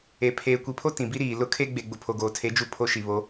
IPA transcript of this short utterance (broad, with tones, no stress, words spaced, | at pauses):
e˨ pʰeː˨kʷi˨pʰo˦ tĩ˨bi˦ɾiː˨ lʊ˦ kʰe˦ ɡ͡be˨ ɡ͡bʊ˨pʰo˨ɡoː˨tʰe˨˦ d͡ʒu˦pʰo˦ʃi˨βo˨˦